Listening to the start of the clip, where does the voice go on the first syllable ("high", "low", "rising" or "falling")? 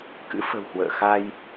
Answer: rising